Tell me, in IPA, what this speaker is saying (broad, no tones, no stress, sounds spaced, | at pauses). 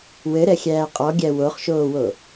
w ɘ ɾ ɛ xʲ æː qʼ ɔ ɡʲ æ w o χ ʃ oː w o